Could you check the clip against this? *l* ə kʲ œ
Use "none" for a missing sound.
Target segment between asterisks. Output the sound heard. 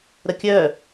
ɾ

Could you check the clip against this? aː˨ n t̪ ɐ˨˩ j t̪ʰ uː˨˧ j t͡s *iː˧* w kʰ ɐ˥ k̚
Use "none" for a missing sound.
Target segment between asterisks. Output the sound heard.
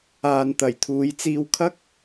iː˧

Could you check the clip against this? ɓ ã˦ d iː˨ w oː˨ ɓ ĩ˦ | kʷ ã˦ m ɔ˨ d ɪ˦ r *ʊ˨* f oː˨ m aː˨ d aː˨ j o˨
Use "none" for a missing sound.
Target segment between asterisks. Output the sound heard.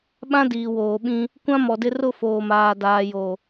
ʊ˦˨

